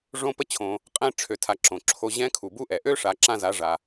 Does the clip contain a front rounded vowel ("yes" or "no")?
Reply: yes